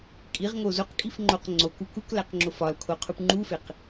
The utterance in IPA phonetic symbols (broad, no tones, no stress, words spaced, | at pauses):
kʼiʁŋo zoqkʼifŋ͡ǃoq ŋ͡ǀoku kuklæqŋ͡ǁo fɒlkʰoqʰup ŋ͡ǃufeq